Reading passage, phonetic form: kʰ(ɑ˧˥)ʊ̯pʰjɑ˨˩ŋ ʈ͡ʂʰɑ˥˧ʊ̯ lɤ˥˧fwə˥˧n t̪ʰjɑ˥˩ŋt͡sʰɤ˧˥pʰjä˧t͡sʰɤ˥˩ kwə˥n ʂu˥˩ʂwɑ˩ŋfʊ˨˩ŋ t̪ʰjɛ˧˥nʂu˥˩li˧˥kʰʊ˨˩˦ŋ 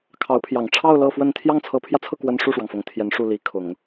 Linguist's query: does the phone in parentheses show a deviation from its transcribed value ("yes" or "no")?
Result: no